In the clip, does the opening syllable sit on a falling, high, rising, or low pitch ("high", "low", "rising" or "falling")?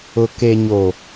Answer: low